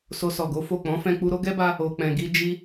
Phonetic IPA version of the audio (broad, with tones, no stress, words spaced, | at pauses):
so˧sɔ˨ɡo˨˦fo˦˨ k͡pɔ̃˨˦fɛ̃˧ k͡pu˧ɾo˦ɡɛ˦ba˧ | o˨k͡pɛ̃˨ɡi˧ d͡ʒi˧